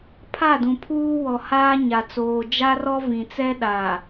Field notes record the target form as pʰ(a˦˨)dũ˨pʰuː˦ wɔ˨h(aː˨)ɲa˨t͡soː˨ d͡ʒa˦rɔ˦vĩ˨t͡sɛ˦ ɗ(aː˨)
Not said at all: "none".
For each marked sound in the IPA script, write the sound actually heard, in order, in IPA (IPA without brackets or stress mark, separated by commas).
a˦˨, aː˦, aː˨